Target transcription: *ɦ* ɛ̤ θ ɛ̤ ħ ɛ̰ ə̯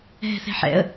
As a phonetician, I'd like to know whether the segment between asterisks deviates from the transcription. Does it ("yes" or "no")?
no